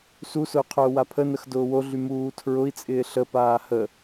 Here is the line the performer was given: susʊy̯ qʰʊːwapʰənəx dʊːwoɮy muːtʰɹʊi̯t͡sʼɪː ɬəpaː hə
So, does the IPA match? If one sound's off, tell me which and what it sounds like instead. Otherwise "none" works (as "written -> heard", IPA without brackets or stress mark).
none